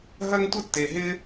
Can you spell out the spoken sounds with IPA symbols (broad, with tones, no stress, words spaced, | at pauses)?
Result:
ɦɐ˥ŋtʷə˥tːe˧ɦɪ˥